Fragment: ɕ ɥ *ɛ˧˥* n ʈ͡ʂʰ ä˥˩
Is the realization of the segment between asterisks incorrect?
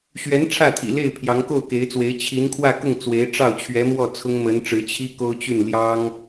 no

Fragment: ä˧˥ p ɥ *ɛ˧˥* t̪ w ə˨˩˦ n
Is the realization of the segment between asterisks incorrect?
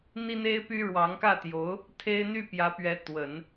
no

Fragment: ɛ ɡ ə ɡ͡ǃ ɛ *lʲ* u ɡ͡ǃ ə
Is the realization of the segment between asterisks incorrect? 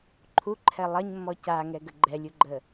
no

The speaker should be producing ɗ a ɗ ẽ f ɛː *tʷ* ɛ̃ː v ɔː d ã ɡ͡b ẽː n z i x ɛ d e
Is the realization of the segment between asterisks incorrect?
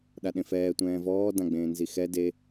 no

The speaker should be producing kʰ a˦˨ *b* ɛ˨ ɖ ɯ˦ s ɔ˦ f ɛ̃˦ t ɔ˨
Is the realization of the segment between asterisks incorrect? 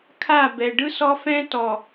no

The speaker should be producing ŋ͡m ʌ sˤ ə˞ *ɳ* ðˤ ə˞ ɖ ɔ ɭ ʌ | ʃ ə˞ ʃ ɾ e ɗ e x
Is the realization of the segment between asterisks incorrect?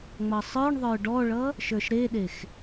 no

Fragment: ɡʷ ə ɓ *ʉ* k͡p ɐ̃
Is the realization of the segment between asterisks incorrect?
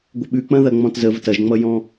no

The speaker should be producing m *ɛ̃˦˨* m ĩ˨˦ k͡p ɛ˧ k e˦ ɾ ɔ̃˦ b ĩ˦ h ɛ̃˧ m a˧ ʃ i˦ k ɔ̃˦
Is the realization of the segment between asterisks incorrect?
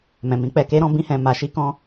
yes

